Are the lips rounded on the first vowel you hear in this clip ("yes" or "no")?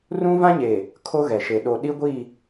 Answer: yes